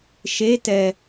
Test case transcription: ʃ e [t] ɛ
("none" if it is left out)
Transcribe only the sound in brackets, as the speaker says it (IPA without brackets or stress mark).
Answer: t